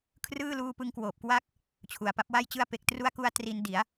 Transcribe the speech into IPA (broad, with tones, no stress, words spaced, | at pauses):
kʰrɯː˥˩ luː˧pɯ˧ŋkwoː˨˩p̚kwa˦˥k̚ | t͡ɕʰu˨˩a̯pa˦˥p̚wa˥˩jt͡ɕɯ˥˩a̯ pe˨˩k̚tru˦˥a̯ku˧a̯ tri˧n di˩˦a̯